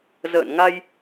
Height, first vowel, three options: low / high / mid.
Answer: mid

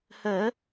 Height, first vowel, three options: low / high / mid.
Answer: mid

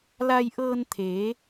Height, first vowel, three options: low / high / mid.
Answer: low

